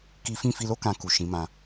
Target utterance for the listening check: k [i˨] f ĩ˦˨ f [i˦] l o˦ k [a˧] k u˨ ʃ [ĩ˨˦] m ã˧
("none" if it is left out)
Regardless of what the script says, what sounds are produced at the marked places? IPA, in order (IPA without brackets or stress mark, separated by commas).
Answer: i˦, i˧, ã˧, ĩ˨˦